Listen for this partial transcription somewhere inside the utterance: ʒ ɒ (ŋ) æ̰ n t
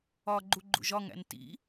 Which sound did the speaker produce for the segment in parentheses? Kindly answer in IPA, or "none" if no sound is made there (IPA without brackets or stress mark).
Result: ŋ